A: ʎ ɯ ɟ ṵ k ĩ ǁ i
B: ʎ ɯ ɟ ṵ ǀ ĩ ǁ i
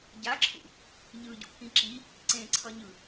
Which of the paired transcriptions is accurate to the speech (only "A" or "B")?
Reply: A